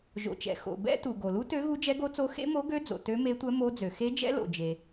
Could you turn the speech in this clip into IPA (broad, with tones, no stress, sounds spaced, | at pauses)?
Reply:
ʒ o̰˩ t͡ʃ ɛ̰˩ x o̰˩ b ɛ̰˧˥ t u˩ ɡ o˩ l u˧˥ t ø˧˥ ɣ u˧˥ d͡ʒ ɛ˧˥ ɡ o˧˥ t͡s o˧˥ x ḛ˧˥ m o˧˥ ɡ ø˧˥ d͡z o̰˩ t ø˧˥ m e˧˥ tʷ ɛ˧˥ m o˧˥ d͡z ø˩ x e˧˥ d͡ʒ ɛ̰˧˥ l o̰˩ d͡ʒ e˩